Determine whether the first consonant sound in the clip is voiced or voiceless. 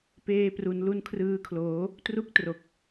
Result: voiceless